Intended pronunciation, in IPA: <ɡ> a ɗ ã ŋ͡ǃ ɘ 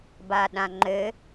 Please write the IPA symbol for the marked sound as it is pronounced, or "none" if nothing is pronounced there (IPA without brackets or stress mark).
b